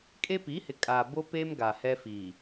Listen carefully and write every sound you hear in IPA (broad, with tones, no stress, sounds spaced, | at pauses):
kʼ e˦ p i˨˦ h ɪ˨ kʼ a˨ b o˦ p e˦ m ɡ a˨ h ɛ˦ f iː˨